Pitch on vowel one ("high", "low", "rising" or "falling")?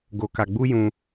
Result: low